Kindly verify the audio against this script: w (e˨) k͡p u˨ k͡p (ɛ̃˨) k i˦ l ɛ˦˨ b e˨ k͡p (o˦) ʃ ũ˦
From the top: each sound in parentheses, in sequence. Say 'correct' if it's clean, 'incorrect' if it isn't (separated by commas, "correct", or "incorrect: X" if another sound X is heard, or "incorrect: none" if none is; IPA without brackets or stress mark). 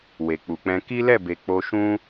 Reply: correct, incorrect: ɛ̃˧, incorrect: o˧